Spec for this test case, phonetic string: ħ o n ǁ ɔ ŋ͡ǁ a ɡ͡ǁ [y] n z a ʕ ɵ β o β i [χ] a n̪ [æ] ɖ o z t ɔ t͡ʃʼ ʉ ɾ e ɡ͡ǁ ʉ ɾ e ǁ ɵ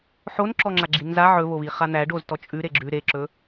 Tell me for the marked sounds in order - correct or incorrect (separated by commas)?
incorrect, correct, correct